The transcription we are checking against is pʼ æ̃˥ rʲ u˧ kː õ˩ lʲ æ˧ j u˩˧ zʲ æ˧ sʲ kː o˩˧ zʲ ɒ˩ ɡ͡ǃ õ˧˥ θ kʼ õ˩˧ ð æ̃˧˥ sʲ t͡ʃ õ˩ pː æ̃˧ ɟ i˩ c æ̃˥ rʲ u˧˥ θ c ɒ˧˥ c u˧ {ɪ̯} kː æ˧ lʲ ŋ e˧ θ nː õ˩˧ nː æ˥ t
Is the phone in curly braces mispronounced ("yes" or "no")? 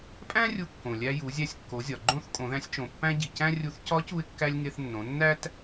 no